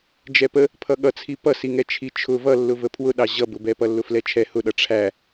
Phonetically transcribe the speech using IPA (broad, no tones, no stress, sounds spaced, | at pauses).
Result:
d͡ʒ ɛ p ə | pʰ ʌ ɠ ʌ t͡sʰ i p ʌ s i ŋ ɛ t͡ʃʰ i t͡ʃʰ ʊ v ʌ lː ʊ v ə pʰ w ʊ ɗ ɑ ʑ ʌ b ʊ b ɛ p ʌ lː ʊ f l ɛ t͡ʃʰ ɛ h ʊ ɗ ʌ ʈ͡ʂʰ æ